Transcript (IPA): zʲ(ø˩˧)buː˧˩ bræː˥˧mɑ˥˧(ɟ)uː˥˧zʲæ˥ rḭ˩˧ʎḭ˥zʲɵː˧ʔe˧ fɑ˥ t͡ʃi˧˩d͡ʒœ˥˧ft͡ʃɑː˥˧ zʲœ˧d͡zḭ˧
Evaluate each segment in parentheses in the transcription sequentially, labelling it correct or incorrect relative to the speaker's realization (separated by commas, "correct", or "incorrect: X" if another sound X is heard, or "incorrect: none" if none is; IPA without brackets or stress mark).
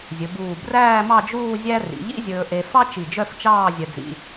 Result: incorrect: ɵ˩˧, incorrect: d͡ʒ